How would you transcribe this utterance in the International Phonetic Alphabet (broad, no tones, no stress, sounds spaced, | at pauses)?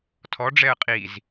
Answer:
tʰ ɔ ɖ͡ʐ ɛ ə̯ qʼ i z